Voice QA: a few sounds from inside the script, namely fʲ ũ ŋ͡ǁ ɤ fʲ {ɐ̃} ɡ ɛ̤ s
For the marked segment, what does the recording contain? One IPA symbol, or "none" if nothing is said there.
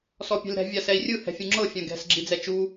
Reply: ã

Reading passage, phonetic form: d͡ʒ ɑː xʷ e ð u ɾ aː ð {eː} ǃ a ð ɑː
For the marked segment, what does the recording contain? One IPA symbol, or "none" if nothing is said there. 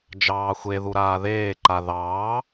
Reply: eː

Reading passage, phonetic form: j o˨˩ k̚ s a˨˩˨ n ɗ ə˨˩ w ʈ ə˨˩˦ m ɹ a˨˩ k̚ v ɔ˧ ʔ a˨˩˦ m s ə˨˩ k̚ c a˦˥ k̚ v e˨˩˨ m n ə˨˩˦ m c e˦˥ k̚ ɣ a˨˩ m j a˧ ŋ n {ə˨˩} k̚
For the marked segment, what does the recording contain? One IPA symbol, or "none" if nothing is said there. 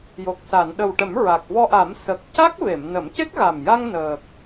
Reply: əː˨˩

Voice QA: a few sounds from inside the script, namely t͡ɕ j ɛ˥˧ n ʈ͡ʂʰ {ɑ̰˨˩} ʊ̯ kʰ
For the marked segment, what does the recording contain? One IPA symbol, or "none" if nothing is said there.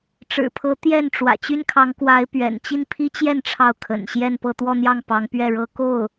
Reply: ɑ˥˩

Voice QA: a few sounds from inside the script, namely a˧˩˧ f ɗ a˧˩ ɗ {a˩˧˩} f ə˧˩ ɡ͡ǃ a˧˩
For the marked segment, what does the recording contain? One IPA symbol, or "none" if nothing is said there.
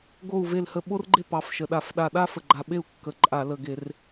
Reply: a˥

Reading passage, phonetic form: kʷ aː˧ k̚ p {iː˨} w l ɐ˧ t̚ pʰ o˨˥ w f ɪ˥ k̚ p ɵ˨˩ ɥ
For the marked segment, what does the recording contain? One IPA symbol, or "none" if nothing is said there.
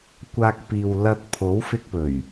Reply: iː˨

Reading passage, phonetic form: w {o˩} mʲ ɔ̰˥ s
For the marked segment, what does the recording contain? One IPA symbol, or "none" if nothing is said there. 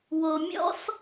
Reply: o˩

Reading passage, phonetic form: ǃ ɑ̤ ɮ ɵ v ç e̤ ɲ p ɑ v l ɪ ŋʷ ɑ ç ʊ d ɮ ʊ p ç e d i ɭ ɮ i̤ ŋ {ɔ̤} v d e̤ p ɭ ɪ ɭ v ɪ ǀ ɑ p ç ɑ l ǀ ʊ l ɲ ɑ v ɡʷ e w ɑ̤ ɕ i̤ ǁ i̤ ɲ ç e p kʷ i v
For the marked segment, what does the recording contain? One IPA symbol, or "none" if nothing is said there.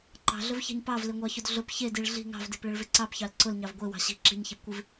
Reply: ɑ̤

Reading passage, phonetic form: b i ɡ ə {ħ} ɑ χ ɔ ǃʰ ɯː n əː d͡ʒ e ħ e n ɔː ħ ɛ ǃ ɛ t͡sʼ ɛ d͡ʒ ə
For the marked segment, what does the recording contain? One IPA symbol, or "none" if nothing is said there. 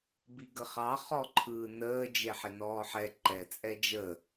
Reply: χ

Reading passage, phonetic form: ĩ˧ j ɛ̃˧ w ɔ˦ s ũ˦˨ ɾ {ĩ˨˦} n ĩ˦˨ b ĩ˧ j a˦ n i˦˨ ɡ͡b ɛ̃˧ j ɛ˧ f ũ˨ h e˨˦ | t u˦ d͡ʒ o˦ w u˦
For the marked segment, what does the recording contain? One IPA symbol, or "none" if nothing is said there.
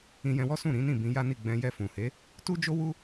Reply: ĩ˨˦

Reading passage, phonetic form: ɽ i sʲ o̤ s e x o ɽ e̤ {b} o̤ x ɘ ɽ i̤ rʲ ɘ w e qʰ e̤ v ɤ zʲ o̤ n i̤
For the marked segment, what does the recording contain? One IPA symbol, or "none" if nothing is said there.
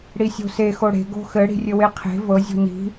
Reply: ɡ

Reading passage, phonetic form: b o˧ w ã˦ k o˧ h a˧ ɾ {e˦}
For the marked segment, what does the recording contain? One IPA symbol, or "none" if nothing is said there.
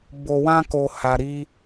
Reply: i˦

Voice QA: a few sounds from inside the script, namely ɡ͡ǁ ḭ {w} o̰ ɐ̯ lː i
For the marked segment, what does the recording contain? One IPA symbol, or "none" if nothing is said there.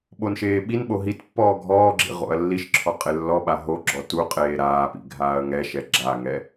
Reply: ʁ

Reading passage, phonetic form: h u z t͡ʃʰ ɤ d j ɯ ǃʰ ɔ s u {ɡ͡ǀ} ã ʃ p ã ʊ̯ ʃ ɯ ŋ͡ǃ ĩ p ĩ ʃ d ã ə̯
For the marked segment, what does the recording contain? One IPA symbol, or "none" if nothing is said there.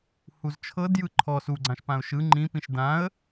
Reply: ɡ͡ǀ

